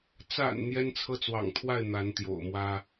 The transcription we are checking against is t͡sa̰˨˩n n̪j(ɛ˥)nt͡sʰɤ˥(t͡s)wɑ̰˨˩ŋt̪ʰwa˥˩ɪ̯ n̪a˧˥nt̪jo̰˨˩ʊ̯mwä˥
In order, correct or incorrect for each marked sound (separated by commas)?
correct, correct